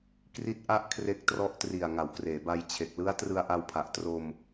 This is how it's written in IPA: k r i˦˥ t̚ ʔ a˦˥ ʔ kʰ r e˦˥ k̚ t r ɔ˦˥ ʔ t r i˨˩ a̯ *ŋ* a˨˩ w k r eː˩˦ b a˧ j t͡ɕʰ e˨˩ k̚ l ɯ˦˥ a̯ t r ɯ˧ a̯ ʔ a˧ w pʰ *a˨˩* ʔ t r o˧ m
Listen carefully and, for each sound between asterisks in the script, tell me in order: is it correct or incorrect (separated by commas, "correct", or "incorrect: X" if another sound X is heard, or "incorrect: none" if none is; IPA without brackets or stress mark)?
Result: correct, correct